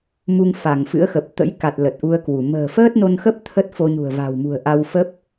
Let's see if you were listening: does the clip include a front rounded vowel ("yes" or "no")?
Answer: no